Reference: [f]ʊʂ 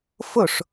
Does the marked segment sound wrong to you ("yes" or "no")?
no